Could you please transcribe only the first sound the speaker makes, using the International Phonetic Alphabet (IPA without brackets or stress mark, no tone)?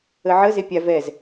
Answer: ə